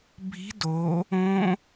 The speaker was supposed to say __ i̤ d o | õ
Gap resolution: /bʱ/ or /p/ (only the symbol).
bʱ